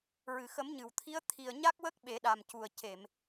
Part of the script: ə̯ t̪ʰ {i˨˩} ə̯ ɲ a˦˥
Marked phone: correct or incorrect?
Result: correct